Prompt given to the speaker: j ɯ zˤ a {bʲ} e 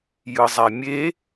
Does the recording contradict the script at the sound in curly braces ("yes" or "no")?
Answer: yes